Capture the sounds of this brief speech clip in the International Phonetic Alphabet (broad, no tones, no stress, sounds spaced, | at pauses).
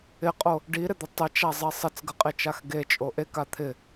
ɪ qʼ o | ɖ i ɾ ɪ d̪ ɪ tˤ ɪ t͡ʃ a zˤ e sˤ ɪ t͡s ɡ ə qʼ e t͡ʃ a x ɡ e t͡ʃʼ o ʔ e k a t̪ʰ ɪ